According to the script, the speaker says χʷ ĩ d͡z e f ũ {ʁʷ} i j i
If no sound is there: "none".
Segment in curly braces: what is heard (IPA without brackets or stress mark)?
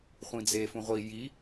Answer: ʁʷ